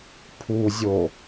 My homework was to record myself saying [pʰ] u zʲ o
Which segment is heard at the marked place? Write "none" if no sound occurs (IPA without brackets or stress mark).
pʰ